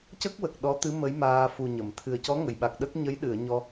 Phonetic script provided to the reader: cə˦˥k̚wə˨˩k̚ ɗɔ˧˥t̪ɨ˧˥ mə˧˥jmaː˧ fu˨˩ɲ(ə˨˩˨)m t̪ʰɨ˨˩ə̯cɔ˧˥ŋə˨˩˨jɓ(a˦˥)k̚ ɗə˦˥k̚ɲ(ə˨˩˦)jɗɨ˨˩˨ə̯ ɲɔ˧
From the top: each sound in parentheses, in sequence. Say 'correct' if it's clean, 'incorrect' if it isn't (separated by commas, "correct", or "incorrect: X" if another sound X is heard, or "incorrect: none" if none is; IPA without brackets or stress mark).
correct, incorrect: a˨˩, incorrect: ə˧˥